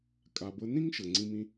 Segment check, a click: present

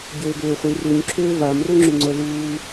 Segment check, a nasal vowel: absent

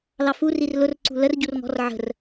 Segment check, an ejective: absent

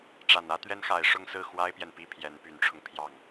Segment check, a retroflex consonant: present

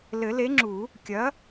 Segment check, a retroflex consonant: absent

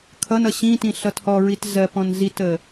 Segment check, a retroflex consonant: absent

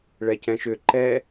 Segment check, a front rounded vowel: present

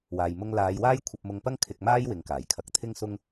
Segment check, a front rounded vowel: absent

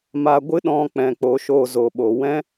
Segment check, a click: absent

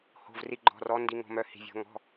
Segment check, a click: present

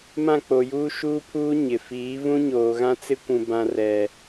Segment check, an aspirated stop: present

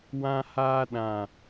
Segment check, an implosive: present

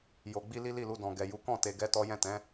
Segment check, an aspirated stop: absent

